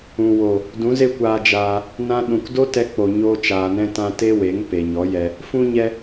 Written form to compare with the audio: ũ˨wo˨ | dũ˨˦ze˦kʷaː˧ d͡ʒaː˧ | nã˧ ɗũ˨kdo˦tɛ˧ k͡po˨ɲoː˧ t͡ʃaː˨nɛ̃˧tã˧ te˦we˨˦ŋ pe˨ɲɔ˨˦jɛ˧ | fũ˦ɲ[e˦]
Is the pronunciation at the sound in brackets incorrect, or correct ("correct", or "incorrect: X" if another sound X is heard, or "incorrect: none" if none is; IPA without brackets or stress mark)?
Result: incorrect: ɛ˦